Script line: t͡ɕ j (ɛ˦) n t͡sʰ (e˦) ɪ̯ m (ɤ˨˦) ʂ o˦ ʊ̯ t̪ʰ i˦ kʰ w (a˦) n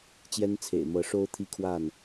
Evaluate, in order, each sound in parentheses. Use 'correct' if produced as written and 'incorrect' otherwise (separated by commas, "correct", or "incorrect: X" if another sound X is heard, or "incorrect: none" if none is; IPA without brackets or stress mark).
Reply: correct, incorrect: ḛ˨˩, correct, incorrect: a˥˨